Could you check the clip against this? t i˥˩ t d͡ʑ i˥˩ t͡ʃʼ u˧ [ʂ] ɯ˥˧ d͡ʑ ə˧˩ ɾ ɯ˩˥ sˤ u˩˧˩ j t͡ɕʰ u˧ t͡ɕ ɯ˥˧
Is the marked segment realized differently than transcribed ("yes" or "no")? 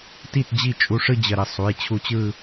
no